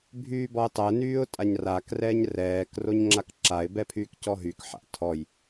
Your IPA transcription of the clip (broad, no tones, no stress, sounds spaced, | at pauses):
bʱ yː b ɔ ɪ̯ tˤ ɛ n yː ʊ̯ tʼ a ɲ r a k r ɛː ɲ r ɛː k r o ɲ ŋ͡ǁ a k ǁ a ɪ̯ b ɛ pʰ yː k c ɔ ɦ y k ħ a̰ tʰ ɔ j